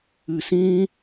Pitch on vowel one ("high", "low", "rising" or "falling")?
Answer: low